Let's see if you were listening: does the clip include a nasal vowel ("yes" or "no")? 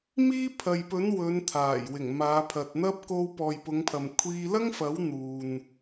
no